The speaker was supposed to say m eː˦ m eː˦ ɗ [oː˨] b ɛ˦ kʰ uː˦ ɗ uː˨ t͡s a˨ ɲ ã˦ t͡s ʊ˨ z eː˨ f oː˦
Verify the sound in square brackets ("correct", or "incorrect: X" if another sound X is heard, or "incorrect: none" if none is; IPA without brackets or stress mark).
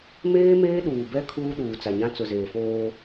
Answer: incorrect: uː˨